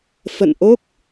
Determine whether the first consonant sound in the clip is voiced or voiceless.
voiceless